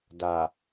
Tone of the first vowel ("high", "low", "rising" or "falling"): low